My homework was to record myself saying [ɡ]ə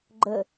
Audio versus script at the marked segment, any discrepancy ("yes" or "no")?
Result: yes